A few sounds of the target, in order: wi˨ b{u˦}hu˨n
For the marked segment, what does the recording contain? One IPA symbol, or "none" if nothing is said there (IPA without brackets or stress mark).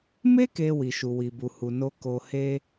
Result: u˨